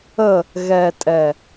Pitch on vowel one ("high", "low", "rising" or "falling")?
falling